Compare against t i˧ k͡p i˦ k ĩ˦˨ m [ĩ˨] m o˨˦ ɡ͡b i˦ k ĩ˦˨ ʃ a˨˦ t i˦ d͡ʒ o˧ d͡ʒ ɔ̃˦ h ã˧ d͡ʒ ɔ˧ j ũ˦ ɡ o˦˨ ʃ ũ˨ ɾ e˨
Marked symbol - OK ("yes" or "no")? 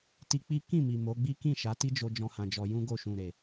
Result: no